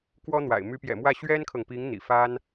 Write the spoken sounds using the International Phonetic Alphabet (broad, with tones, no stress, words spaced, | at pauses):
kwɔ˥n̪wa̰˨˩ɪ̯ my˧˥pjɛ̰˨˩mwä˥˩ ɕɥɛ˥nkʰɤ˨ŋpi˧˥ŋ n̪ḭ˨˩fa˥n